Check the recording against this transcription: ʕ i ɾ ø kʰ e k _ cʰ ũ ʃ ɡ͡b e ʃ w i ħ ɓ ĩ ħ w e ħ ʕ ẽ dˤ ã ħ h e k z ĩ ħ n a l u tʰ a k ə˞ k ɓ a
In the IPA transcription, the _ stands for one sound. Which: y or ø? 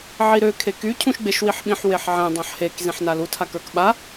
y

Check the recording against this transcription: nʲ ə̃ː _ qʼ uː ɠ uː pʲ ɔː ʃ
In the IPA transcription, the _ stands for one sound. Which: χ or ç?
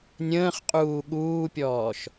χ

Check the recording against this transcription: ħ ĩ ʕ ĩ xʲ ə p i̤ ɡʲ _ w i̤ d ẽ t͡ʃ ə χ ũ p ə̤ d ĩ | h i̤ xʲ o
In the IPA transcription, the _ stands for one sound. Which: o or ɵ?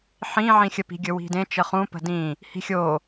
ɵ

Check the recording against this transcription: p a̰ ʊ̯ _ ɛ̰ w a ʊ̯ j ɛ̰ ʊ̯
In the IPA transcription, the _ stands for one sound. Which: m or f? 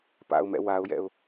m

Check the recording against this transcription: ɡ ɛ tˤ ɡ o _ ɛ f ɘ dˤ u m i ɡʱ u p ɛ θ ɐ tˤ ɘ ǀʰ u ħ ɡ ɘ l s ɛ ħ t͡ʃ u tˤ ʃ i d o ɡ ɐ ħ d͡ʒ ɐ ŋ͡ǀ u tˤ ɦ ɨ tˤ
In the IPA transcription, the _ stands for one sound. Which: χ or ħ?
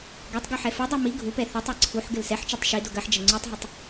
ħ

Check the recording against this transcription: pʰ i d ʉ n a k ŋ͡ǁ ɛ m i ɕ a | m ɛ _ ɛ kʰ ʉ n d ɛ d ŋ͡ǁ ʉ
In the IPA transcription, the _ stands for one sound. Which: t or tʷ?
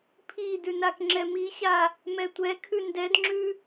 tʷ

